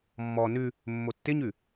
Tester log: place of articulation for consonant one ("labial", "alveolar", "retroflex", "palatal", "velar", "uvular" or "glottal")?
labial